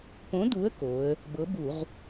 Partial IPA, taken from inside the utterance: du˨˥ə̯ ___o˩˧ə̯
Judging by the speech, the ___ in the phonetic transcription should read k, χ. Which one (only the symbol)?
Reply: k